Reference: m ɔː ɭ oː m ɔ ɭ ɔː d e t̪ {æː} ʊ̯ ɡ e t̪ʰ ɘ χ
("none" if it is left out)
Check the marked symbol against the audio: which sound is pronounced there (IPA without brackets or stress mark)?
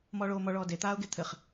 aː